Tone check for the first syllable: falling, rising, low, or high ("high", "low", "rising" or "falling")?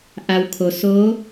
low